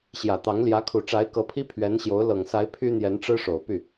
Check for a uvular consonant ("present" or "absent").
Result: absent